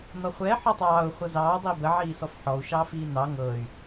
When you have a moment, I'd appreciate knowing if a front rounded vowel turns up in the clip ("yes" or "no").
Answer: yes